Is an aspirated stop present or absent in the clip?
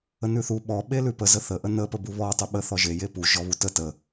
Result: absent